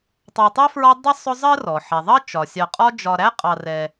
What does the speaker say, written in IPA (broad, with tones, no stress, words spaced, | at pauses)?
tˤɑ˨tˤɛ˥fɹɒ˦ dˤɪ˥sˤʊ˦zˤɜ˥ rɔ˩ ħɛ˩ðˤʌ˥ t͡ʃɒ˩sʲɑ˨qʼɒ˦ d͡ʒɒ˨ ɾæ˥qʼɑ˨ rɛ˨